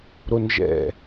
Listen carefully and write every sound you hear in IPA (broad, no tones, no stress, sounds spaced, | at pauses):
ɾ o n ʒ ɛ̰